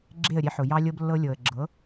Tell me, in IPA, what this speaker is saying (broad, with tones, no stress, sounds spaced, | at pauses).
ɡ͡ǁ e˦˨ ə̯ ɾʲ e˧ ħ ʊ˨ j ɑ˧ lʲ ɤ˧ b lː ɤ˧ lʲ ɤ˨ ə̯ ɡ͡ǁ ɤ˨˦